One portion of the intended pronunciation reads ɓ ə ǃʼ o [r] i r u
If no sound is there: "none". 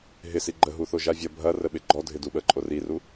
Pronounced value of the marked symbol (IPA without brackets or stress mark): r